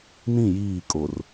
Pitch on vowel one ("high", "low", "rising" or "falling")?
falling